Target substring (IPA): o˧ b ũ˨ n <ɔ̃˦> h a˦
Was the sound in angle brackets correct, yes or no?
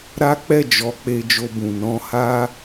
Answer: no